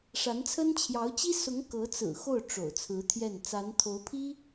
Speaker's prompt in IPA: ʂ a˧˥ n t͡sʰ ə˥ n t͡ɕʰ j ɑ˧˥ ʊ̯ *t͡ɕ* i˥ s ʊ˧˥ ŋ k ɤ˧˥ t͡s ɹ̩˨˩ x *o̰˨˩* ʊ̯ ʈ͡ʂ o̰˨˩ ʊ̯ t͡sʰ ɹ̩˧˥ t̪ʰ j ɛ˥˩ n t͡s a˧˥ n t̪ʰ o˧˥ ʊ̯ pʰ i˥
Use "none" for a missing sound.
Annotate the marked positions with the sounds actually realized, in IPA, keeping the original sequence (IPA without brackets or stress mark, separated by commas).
t͡ɕ, o˥˩